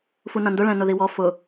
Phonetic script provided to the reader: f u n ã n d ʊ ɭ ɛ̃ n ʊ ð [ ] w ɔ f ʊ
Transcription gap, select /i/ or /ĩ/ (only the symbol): i